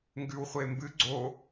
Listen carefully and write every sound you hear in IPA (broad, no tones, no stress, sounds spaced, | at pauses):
ŋ ɡ ʉ w χʷ e m b ɨ ɡ͡ǀ o